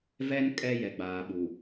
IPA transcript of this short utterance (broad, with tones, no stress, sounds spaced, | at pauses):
v ɛ˦ n kʼ ɛ˦ j ɛ˨ ɡ͡b aː˨ ɓ u˨